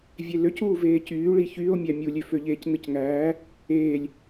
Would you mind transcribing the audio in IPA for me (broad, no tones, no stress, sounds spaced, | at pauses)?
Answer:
vʲ e l ø c uː v eː c yː ɭ i ç yː o̯ mʲ æ mʲ u lʲ ø f ø ʎ eː c n ɯ c ŋ æː | eː lʲ